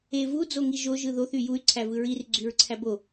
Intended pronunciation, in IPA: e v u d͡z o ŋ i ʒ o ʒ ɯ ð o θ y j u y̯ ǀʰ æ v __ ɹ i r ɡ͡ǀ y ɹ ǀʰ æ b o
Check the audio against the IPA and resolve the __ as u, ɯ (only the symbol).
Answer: ɯ